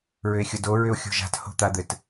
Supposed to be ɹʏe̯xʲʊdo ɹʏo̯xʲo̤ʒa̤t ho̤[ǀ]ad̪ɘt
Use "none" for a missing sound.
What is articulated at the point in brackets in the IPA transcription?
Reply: t̪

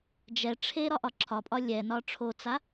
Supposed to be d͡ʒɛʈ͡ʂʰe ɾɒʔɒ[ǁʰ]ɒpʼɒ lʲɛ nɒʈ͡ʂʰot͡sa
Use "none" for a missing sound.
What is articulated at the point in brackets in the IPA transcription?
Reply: ǁʰ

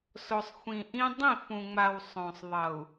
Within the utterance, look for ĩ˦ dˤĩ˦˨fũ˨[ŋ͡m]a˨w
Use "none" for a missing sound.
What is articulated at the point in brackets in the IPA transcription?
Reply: ŋ͡m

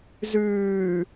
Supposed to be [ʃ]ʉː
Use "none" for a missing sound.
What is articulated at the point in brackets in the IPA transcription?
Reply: z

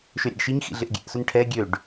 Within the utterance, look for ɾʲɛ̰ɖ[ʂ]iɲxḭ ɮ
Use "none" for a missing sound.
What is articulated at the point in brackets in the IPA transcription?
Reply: ʃ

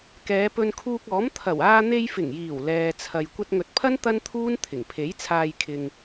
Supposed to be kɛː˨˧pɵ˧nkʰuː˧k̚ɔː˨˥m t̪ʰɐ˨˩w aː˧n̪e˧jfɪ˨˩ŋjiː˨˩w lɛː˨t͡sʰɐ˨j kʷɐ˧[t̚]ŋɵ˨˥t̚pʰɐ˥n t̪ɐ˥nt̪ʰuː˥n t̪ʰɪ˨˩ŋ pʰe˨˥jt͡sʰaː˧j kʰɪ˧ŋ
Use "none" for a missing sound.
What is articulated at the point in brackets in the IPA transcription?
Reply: t̚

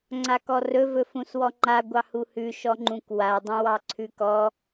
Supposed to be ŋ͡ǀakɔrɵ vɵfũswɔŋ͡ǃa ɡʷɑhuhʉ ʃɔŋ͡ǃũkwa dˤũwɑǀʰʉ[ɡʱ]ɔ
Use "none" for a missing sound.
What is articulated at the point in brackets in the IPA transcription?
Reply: k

